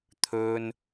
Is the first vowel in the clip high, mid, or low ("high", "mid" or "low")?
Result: mid